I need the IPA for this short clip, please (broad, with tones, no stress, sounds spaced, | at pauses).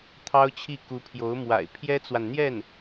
t̪ʰ ɑ˥ ʊ̯ t͡ɕʰ i˥˩ k u˧˥ pʰ j o˧˥ ʊ̯ m w a̰˨˩ ɪ̯ pʰ j ɛ˥ t͡s w a˨ n n̪ j ɛ˥˩ n